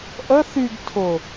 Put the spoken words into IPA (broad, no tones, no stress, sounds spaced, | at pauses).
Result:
ʔ ə θ y ɡ tʰ ʊ